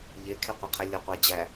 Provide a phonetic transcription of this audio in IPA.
ʎekʰeqʷɐqʰɛ lʲɐqʷæd͡ʑæ

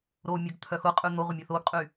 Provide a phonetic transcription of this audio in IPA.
ɾomʲəɡ t̪ʰœxʊqʼʉ n̪oʁʷə mʲʊθoɡqʼy

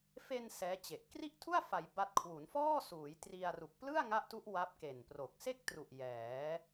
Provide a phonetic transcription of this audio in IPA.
fe˧n sɛː˦˥t͡ɕe˨˩ʔ kri˥˩ʔtʰu˥˩a̯ fa˩˦j ba˦˥t̚ kʰwu˩˦nfɔː˥˩suː˩˦j tri˧a̯ ru˨˩k̚plɯ˥˩a̯ŋa˦˥ʔtu˦˥ʔ wa˦˥p̚ke˨˩npro˨˩k̚ se˥˩k̚tru˨˩ʔ jɛː˩˦

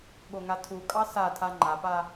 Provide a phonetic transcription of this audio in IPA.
ɠoŋatʰukʼɑ satʰa ŋ͡ǃapa

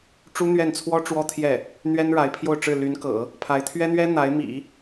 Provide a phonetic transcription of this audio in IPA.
ʈ͡ʂu˥n̪ɥɛ˥˩nt͡sʰwɔ˥ ʈ͡ʂwɔ˥t̪ʰjɛ˥˩ | n̪ɥɛ˥nɻa˧˥ɪ̯pʰjo˥˧ʊ̯ʈ͡ʂɻ̩˥˩ ly˧˥nkɤ̰˨˩˦ | pʰa˧˥ɪ̯t̪ʰɥɛ˥n̪ɥɛ˥ n̪a˧˥ɪ̯mḭ˨˩˦

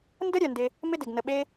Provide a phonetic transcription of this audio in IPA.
ndə˦ ɾʲœ˨ndɪ˧ | mɪ˦dɪ˨ɡ nə˧ɓe˦

